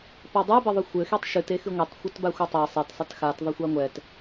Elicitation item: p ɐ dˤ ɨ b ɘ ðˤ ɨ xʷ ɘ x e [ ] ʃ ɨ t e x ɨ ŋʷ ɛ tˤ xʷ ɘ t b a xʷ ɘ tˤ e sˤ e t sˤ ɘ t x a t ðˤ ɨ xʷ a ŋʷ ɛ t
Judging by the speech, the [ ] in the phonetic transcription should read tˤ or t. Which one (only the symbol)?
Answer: tˤ